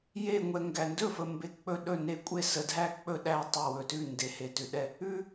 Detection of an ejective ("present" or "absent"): present